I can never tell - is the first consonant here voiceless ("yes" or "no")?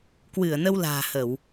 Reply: yes